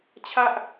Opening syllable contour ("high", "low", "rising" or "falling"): high